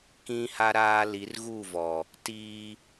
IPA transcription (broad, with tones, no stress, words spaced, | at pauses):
kĩ˦ha˦ɾaː˦ li˨˦rɣu˦˨vɔ˨ | tiː˦